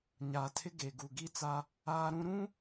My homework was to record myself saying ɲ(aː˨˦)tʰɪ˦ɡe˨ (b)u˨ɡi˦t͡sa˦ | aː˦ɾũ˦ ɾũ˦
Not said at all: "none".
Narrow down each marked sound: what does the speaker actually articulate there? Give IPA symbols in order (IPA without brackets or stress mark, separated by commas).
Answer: aː˨, ɡ